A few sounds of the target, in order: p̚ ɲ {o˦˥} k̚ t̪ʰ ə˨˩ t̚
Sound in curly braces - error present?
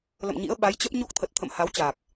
no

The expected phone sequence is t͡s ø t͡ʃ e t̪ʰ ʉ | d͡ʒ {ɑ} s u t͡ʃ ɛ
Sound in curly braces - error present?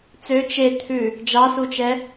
no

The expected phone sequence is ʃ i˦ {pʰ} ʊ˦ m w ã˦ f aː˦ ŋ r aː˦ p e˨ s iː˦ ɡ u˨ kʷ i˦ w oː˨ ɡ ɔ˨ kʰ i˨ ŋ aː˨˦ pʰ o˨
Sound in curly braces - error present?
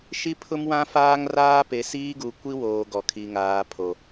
no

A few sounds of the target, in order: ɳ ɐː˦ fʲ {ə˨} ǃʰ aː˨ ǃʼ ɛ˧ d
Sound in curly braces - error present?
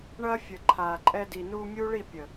no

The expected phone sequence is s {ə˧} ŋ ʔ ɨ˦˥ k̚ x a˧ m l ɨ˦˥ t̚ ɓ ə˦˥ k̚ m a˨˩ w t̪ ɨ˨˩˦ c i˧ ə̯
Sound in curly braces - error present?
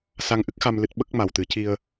yes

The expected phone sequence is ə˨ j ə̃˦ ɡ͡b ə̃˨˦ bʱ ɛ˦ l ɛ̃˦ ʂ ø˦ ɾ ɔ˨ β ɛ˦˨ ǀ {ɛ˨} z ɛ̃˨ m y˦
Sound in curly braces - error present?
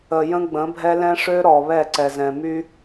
no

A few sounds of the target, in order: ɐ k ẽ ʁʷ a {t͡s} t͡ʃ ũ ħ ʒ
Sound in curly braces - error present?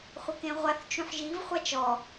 yes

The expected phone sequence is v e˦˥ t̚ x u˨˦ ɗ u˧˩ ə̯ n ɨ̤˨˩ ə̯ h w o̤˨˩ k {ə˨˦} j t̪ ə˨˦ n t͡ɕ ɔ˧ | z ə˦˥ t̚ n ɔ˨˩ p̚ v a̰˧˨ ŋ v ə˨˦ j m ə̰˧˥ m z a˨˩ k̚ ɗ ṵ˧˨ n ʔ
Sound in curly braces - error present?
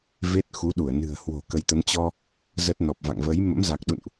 no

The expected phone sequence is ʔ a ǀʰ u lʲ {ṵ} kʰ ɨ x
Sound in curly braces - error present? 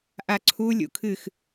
no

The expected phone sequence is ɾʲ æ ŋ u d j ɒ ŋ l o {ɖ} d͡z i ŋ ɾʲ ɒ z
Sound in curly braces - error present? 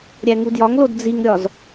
yes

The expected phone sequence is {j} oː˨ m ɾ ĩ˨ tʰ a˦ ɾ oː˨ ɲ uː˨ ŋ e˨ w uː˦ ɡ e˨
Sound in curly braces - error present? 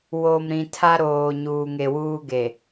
yes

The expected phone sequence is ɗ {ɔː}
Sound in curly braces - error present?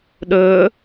yes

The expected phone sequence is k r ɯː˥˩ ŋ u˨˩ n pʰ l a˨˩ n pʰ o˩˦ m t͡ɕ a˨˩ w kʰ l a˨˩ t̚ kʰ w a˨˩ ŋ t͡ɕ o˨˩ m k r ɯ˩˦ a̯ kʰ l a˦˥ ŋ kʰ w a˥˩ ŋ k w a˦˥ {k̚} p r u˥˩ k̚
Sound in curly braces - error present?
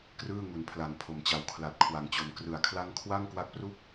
no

